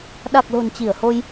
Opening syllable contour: low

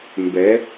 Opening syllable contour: rising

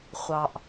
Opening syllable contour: low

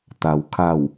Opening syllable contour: low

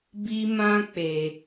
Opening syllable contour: high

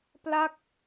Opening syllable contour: falling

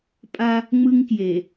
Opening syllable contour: high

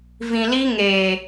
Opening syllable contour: low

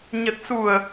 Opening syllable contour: low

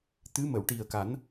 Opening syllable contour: rising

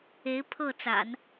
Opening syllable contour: rising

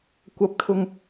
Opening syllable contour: rising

